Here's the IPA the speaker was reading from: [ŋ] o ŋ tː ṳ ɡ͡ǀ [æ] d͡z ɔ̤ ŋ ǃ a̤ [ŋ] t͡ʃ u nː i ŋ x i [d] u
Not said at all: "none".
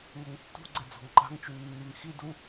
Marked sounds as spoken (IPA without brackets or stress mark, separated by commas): ŋ, ɛ, ŋ, d